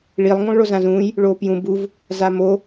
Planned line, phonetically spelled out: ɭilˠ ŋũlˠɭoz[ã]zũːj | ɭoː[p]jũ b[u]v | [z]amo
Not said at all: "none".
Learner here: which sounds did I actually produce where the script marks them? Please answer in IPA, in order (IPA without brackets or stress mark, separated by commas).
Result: ã, p, u, z